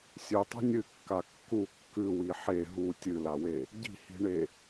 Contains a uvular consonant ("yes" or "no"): no